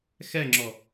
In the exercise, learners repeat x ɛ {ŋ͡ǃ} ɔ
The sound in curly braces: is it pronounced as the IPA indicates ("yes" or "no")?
no